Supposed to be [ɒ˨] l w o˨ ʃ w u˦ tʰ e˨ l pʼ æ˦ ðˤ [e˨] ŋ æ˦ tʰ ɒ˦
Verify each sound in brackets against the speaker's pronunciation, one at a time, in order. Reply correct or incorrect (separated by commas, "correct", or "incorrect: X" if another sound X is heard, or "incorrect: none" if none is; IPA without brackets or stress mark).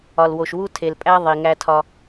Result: correct, incorrect: i˨